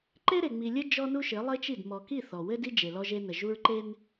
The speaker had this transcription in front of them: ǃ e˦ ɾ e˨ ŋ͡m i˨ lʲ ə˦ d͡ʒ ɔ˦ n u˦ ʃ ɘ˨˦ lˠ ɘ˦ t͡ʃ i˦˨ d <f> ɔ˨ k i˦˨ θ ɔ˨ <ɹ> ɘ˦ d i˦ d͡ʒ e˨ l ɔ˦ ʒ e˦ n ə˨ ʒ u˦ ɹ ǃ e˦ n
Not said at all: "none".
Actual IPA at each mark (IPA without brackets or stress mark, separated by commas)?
m, w